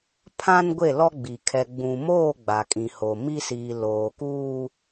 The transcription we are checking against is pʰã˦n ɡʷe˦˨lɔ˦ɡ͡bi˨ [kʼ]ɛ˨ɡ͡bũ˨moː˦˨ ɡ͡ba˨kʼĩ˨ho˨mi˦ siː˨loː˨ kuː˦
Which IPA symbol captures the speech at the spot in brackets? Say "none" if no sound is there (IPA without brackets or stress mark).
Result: kʰ